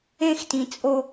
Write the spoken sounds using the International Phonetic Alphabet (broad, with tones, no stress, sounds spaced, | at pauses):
ẽ˦ x t ĩ˨ t͡sʼ o˦